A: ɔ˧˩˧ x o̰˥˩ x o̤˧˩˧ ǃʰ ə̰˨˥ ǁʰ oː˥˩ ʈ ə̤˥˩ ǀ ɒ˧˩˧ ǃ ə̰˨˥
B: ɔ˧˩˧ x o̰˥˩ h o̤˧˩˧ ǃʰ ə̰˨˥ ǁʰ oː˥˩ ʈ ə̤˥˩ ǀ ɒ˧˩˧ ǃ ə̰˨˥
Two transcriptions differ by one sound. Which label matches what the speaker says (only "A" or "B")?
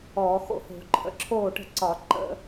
B